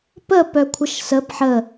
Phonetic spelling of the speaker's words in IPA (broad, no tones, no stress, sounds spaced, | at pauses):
p ə p œ kʷʰ ə ʃ s ə p ħ ə